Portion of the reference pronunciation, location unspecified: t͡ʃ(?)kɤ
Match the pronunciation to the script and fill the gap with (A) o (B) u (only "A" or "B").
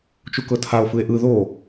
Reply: B